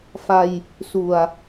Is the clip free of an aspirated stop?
yes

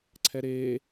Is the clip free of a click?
no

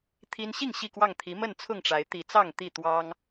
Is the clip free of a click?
yes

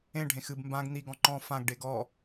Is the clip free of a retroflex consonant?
no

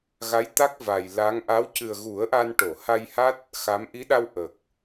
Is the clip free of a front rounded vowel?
yes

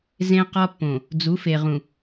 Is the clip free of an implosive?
yes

